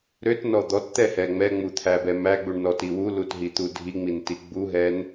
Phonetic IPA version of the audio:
ɾøtnɔ d̪ɔtt̪ɛhɛ ŋ͡mɛŋ͡mut̪ʰæbɛ mæɡ͡buɳnɔti wulutɦit̪u dʱiŋ͡minti ɡ͡buɦɛn

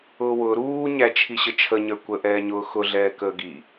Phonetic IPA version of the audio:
ʊːwʊː ɾuːɲæ t͡ʃʰiɕət͡ʃʰəɲə˞ kʷəʔɛːɲʊː xʊɮɛː kəːɡi

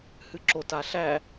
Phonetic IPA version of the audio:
hɨǁota ɬæ

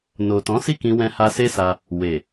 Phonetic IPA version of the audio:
no˨tɔ̃˨˦si˦˨kĩ˧ wɛ̃˧ha˧se˦sa˧ | we˨

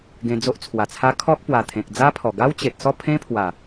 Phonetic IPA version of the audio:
ɡẽ˧d͡zo˦ʔt͡sʰwa˨˩t͡sʰa˦ kʰɔ˦k̚ pwa˨˩t̪ʰẽ˨k̚d͡za˦pʰɔ˨˩ ɡa˦wt͡ɕe˨t̚sɔ˥˧ pʰẽ˦pʰwa˨˩

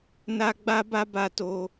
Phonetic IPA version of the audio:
na˦ɡ͡ba˦ba˦ ba˦to˦

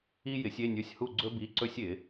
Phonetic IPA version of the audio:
i˥jɪ˨˥sʲe˧˥˧nʲɵ˧˥˧sʲ hu˥˨ɡ͡ǀɵ˥ bi˧˥˧ǀɵ˥sʲɪ˨˩˦

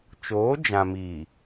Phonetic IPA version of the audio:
t͡ʃoː˨˦d͡ʒã˨miː˨

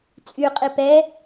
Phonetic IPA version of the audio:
t͡sʼyqʼi pɛ

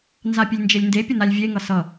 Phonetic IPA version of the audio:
nzapʲelʲnd͡ʒelʲnde pʲənalʲvʲe ŋʌsʌ

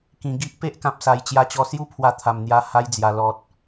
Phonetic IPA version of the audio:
kĩ˨˩ɡi˦ʔ pe˦ʔkã˨p̚sa˨˩j t͡ɕja˧t͡ɕɔ˧sju˥˧ pʰwa˧t̪ʰa˨˩mn̪ja˧ ha˧jd͡zja˨˩lɔ˨t̚

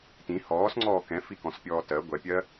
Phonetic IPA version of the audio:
tĩ hɔːsŋ͡ǀɔː kɛ̃fikɔ̃spʲɔː tɜ ɡʷɛpʲɜ

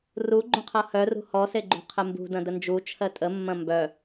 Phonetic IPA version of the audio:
ruɡ͡ǃũqʰʌ hœrṳ hɔseɡ͡ǃṳ qʰəmbṳdɐ̃ dənd͡ʒu t͡ʃʰɜtʼəmːɐ̃ mbœ

